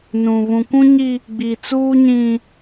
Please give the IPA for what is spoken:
n ũ˨ β ũ˨ kʷ ũ˦ ɲ i˦ | ɡ͡b i˨ t͡s uː˦ ɲ ĩ˦

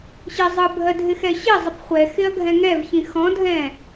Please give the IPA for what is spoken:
ɕ ɪ zˤ ɯ bʱ ɜ dʱ ɪ x ɛ ɕ ɪ zˤ ɪ p χʷ ɛ x ɪ ɐ̯ ɡʱ ɛ̃ ŋ ɛ v ç ĩ x ɔ̃ dʱ ɛ̃

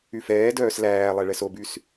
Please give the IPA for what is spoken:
y f ɛː d œː s l æː lˠ ɛ ɭ ɛ s o b y s

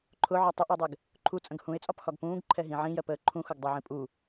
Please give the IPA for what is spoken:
ǃʰ ʊ ʕ ɒ tˤ ə ʔ əː dˤ ɛ ɡ | ǃʰ u t͡sʼ ə̃ ɡ h ũ ɪ̯ t͡sʼ ɒ p x ɒ ɡ p ũː ɡ ǃʰ ɛ ɦ ĩ ʕ ĩ j ɜ p əː ǃʰ ũ x ʊ ɡ dˤ ʌ ʕ ĩ pʼ u

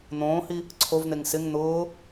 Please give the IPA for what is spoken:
n̪ õː h i | ǀʰ o v n̪ e ŋ s ɪ ŋ n̪ ʊː

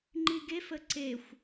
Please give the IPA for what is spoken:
ŋ͡ǃ i ɡ e f ə ǀ e xʷ

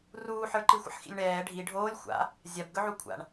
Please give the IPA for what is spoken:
r uː ħ ə˞ ǃ i xʷ ə̰ ħ x ḭ lʲ ɳ ɛː ɖʱ i ɖʱ oː lʲ xʷ a̰ | zʲ a b ɡ ɵ ʕ u kʷʰ a̰ ɳ

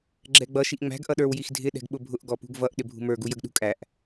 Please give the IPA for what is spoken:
ɡ͡ǁ ɛ ɡ͡b ʌ ʃ i ʔ ŋ͡m æ̤ ɡ ʔ ʌ ɗ ə˞ w j i x dʱ ɪ ɗ ɛ̤ ɡ ɓ ʊ bʱ ʊ ʔ ɡ ɔ p ṳ ɡ v ʌ ʔ ɗ ɪ bʱ ṳ m ə˞ ɡ u j ə ɡ ɗ ṳ kʼ æ ʔ

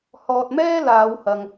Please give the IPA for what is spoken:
h ɔː˨ t̚ m ɛː˥ l aː˨˧ w h ɐ˨ ŋ

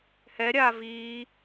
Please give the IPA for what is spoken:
h ɛ ɾʲ aː v iː

